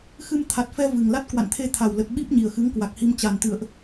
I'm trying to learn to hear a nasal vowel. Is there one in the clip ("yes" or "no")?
no